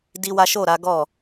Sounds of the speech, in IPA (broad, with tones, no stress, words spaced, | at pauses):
di˦wa˦ ʃo˦˨ɾa˨˦ɡɔ˦˨